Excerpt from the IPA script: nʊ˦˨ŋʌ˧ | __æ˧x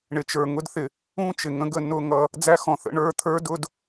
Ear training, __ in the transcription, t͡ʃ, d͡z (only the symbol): d͡z